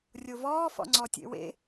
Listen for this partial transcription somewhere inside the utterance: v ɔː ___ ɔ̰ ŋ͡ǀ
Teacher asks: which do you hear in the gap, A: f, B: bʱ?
A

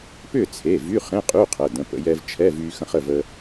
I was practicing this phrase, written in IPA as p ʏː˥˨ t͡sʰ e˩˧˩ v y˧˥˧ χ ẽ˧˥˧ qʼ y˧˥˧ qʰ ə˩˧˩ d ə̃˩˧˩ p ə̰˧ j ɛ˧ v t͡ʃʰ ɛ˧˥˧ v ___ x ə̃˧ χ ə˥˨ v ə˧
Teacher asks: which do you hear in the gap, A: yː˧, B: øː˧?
A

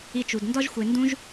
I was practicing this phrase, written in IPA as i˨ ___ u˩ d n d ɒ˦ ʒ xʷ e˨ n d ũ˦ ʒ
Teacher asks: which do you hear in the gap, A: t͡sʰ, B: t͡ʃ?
B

